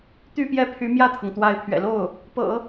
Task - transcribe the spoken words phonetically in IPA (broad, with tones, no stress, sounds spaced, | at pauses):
t̪ y˥˧ p j ɛ˥˩ pʰ y˧˥ m j ä˥˩ t̪ʰ ɤ˩ ŋ t̪ w a˧˥ ɪ̯ pʰ ɥ ɛ̰˨˩ l o˥˩ ʊ̯ | p ɤ̰˨˩˦